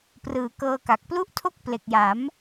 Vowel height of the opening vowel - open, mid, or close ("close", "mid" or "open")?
close